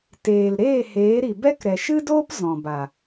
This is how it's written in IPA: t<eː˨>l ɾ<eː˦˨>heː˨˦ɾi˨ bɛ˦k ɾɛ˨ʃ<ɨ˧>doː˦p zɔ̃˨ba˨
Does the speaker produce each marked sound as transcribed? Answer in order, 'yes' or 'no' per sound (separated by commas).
yes, yes, no